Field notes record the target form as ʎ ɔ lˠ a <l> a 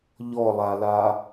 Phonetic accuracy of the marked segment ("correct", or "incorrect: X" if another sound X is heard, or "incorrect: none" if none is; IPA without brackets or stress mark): correct